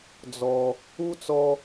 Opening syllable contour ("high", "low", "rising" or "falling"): low